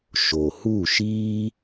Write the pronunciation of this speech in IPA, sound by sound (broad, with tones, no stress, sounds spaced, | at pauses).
ʃ o˨ h u˦˨ ʃ iː˦